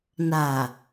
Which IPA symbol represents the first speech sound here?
n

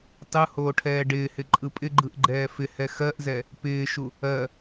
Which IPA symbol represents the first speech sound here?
tˤ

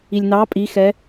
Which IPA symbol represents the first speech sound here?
i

